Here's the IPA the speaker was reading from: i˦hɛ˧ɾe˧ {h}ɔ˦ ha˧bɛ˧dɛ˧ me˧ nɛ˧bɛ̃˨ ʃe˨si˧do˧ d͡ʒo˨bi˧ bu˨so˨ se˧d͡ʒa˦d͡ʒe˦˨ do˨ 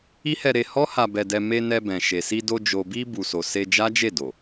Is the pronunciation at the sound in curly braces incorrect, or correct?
correct